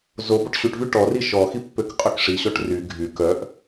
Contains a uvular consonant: yes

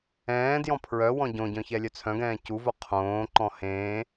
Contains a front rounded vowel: yes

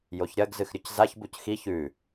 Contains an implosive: no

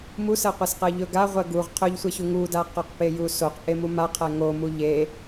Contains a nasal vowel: no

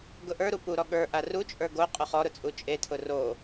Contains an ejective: yes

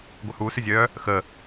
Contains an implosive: no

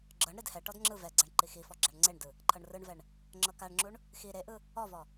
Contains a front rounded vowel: no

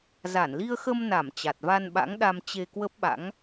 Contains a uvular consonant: no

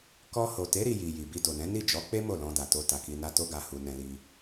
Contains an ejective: no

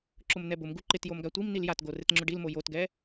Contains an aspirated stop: no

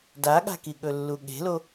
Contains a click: no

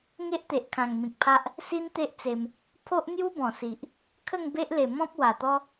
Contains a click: no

